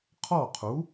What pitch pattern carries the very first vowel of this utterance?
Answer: falling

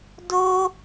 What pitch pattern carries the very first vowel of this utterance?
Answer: high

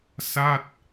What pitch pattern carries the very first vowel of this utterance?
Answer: falling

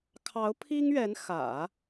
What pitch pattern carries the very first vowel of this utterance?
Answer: rising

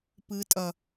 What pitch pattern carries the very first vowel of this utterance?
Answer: rising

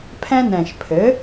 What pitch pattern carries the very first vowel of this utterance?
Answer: high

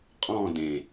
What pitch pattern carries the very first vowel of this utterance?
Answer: falling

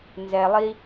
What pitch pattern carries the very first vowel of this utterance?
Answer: low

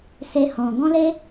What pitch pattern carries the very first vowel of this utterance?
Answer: high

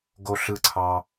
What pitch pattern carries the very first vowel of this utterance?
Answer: high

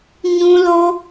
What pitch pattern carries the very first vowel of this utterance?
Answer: high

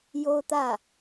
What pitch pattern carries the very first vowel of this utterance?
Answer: high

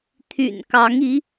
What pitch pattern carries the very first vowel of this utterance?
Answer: low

